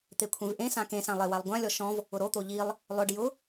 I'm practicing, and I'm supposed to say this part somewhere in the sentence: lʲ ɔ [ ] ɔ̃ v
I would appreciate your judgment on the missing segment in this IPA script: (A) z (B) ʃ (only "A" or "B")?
B